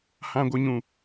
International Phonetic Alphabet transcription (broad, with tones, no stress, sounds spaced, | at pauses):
h ã˨ ɡʷ ɨ˨ ɲ ũ˨